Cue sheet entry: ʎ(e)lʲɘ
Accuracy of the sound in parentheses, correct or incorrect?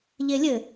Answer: correct